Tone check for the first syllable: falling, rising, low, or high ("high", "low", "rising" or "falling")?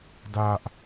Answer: high